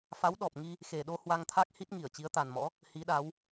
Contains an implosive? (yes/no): yes